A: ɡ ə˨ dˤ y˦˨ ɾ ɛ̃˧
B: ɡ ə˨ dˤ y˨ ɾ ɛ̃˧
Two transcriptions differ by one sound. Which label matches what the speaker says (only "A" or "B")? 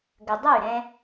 A